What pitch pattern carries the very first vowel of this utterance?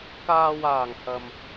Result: low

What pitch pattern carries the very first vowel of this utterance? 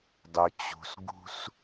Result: low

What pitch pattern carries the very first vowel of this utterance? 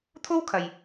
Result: high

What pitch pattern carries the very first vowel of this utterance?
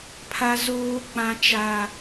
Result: high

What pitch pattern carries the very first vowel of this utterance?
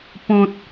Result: low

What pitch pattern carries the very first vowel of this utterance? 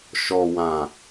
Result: low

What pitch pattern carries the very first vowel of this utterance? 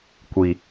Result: low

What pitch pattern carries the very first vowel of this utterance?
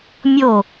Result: falling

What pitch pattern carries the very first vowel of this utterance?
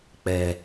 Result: low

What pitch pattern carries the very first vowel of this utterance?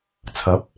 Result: rising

